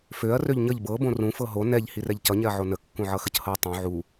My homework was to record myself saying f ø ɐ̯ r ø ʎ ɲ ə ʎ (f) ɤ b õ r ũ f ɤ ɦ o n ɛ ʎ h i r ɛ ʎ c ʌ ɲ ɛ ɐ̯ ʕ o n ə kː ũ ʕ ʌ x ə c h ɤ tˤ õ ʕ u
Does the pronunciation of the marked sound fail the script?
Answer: yes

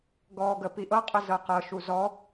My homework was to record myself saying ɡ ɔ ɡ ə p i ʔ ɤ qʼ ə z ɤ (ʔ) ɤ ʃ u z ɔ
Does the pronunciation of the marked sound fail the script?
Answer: yes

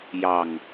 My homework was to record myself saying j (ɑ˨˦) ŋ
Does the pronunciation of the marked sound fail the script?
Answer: yes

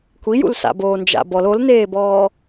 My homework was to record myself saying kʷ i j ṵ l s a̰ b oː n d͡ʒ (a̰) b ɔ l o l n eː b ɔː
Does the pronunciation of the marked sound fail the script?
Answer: no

